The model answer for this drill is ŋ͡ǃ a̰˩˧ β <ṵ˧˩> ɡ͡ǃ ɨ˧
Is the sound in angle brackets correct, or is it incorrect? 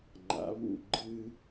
correct